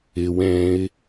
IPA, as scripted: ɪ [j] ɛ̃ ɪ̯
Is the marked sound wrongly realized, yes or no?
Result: yes